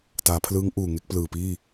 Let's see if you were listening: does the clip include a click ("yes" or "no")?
no